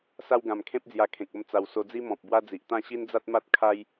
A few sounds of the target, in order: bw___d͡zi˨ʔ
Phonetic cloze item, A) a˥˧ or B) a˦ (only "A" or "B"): B